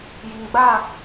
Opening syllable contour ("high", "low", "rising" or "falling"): low